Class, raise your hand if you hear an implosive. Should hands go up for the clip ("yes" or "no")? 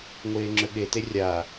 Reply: yes